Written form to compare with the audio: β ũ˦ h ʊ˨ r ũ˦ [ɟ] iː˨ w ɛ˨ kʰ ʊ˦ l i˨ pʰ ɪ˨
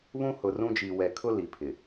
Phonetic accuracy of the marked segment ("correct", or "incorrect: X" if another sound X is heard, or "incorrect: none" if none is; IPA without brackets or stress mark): incorrect: d͡ʒ